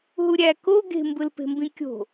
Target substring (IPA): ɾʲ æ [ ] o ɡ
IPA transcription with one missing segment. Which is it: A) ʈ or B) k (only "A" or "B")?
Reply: B